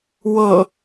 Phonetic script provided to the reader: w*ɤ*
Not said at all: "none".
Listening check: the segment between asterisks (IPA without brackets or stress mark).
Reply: ɤ